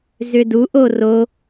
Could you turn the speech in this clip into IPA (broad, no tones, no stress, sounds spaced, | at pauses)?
z ʏ d u ʔ o r o